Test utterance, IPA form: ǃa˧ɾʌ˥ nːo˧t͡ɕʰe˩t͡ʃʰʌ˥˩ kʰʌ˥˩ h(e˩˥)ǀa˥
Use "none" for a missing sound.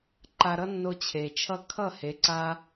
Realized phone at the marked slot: e˩˥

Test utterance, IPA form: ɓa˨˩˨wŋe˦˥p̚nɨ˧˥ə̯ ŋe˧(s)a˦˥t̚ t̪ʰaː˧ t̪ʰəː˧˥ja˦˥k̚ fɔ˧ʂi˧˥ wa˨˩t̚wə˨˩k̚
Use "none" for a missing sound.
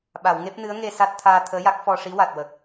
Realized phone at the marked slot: s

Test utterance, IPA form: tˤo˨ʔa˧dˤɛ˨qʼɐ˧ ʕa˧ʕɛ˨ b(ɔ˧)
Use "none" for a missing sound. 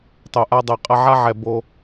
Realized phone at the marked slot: o˧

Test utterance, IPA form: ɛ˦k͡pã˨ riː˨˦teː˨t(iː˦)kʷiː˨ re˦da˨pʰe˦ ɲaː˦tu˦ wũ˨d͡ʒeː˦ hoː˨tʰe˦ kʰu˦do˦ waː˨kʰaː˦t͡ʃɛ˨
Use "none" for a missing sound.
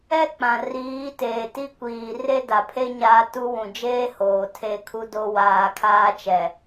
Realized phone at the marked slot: i˦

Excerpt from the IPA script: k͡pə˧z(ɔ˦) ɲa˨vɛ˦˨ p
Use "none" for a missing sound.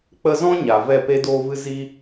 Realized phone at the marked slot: ɔ̃˦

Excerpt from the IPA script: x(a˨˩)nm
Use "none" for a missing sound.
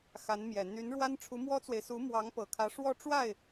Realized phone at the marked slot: a˧˥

